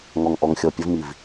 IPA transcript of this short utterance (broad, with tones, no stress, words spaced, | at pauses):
ŋɔ˨ŋʔɔ˨ŋxʲɔ˨ pʲə˦vmi˨v